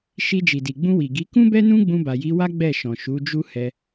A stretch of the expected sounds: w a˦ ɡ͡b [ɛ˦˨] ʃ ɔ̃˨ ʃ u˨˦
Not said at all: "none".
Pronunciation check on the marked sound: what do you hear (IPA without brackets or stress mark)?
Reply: ɛ˦˨